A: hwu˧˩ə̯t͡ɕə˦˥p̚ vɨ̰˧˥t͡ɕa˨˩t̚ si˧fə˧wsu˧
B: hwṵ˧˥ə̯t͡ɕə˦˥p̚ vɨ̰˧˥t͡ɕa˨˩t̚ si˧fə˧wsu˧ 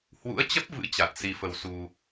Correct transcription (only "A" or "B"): B